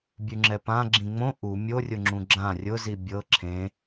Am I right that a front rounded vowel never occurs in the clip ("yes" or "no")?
yes